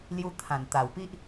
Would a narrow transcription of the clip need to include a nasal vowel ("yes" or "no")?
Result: yes